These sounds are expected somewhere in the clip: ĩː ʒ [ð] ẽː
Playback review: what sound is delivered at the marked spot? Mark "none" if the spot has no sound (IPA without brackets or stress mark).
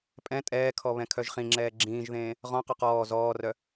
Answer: ð